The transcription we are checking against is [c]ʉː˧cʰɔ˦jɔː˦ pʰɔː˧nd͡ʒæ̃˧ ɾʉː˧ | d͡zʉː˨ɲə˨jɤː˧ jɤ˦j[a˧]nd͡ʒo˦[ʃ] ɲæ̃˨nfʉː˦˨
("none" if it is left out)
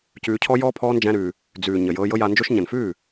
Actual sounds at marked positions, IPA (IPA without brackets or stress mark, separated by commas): c, a˧, ʃ